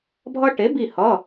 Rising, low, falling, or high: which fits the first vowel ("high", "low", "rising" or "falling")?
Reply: high